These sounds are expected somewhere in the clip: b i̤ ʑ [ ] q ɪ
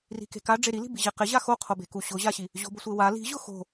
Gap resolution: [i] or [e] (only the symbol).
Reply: e